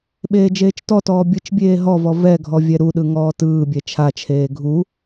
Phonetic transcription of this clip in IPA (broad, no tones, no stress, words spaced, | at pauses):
ɓeːd͡ʒeːt͡ʃtɔtɔː bʲɯt͡ʃbʲeː ɦɔvɔ vɛɡʱɔ vʲɛɾuɗɯ ŋɔːtɯːbʲɛ t͡ʃʰat͡ʃʰeː ɡʱu